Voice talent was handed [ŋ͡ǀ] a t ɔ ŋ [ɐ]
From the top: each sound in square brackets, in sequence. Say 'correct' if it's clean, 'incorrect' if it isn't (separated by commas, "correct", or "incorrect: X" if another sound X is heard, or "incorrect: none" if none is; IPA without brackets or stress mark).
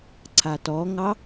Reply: incorrect: ǀʰ, incorrect: ɑ